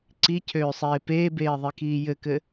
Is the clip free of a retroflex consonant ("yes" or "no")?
yes